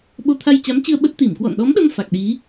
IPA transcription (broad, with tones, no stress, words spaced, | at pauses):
ɓo˧ t̪ʰa˧jt͡ɕa˨˦mt͡ɕɨ˧ə̯ ɓə˦˥t̚ t̪i˧˩mkwɔ̰˧˨nɗɔ˨˦mɗə˧m fa˨˩k̚ɗi˨˦